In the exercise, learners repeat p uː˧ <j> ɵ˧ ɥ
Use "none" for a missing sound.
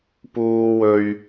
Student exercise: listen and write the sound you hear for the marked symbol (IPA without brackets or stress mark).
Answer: w